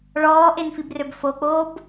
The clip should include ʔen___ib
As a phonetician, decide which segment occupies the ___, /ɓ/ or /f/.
f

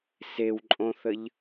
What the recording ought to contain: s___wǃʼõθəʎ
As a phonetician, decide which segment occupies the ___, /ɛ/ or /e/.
e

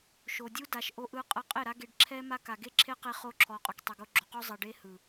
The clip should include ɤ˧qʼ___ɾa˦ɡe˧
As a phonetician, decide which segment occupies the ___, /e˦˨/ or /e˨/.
e˦˨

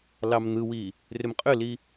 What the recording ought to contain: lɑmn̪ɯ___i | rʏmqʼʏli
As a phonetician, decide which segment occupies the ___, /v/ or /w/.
w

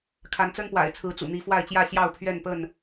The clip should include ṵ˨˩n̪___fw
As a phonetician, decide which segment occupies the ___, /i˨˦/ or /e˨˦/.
i˨˦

